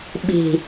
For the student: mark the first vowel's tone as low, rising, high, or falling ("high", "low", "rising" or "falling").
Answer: low